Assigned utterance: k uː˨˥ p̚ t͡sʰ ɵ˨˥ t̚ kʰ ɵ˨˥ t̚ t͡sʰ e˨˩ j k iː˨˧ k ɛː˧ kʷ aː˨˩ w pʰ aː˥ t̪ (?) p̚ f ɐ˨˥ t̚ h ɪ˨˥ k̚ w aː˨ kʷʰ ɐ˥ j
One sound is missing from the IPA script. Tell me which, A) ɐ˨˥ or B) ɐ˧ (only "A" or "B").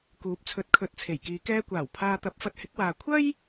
A